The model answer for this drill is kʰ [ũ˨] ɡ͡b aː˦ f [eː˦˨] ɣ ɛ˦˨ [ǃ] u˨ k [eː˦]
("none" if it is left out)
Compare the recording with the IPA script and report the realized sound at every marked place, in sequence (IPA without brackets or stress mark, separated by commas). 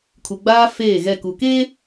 u˨, eː˦˨, k, eː˦